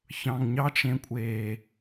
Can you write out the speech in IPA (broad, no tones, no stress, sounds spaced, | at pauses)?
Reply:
ç ɑ̃ ŋ ɲ ɑ t͡ʃ ẽ kʷʼ eː